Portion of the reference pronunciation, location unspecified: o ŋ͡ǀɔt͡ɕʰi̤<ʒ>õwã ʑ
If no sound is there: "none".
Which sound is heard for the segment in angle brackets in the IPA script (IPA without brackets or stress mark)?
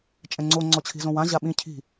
z